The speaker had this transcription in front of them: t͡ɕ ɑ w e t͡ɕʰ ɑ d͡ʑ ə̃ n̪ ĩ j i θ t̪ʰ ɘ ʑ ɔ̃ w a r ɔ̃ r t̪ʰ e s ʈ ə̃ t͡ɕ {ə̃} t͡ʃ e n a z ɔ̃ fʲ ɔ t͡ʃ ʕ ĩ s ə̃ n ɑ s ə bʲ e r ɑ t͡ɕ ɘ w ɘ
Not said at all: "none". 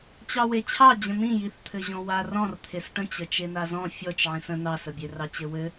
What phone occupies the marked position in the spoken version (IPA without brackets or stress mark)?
ə